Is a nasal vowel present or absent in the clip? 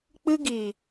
absent